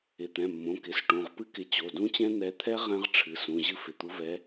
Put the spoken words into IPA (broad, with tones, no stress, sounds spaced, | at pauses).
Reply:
ɪ˩˧˩ t̪ ɛ̃˩˧˩ mː õ˩˧˩ k ɪ˩˧˩ s ʈ ũ˩˧˩ ʁ p ɨ˦˥ k ɪ˨˦ t͡ɕ o˩˧˩ d ũ˦˥ t͡ɕ ɛ̃˦˥ n̪ ɛ˨˦ t̪ʰ ɛ˦˥ ʁ ɛ̃˦˥ ʁ ʈ͡ʂʰ ɨ˩˧˩ s ũ˩˧˩ ʑ ɨ˦˥ f ɪ˩˧˩ t̪ u˨˦ v ɛ˨˦